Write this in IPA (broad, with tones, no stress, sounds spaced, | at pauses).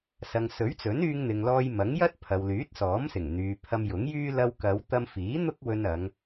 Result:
s ɐ˨ ŋ s ɵ˨˥ ɥ t͡s ɵ˨˥ n yː˧ ŋ n̪ ɪ˨ ŋ l ɔː˧ j m ɐ˨˥ ŋ j ɐ˥ t̚ pʰ ɐ˨ w l yː˨˥ t̚ s ɔː˨˥ m s ɪ˨˩ ŋ n̪ yː˨ pʰ ɐ˧ m j ʊ˨˥ ŋ j yː˥ l ɐ˧ w k ɐ˨˧ w t̪ ɐ˧ m f iː˨˥ n̪ ʊ˥ k̚ w ɵ˧ n ɐ˨˧ ŋ